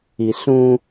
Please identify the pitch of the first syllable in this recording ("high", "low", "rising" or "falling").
low